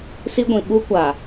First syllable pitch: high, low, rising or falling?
high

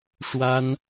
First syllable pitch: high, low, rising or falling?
high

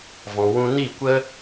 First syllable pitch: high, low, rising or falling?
low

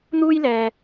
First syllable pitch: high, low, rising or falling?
high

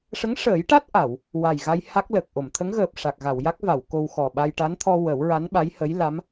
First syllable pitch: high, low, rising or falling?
rising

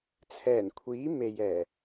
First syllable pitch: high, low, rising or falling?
low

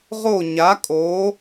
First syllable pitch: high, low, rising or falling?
falling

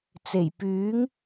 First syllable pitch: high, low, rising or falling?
low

